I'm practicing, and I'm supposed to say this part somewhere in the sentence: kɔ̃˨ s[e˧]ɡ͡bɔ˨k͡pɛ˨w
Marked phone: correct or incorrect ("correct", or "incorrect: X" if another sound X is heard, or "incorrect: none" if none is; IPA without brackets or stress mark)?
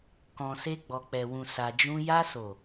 correct